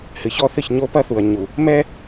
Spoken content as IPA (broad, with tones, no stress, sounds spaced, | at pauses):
h ɨ˨ ç ɔ˦ θ ɨ˦˨ ç ɲ o˦ p ɐ˦ θ u˨ ɐ̯ ɲ u˨ | m ɛ˦